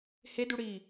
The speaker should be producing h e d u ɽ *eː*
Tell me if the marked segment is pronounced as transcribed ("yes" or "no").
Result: no